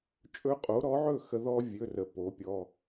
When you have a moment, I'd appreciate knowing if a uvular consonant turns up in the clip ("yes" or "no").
yes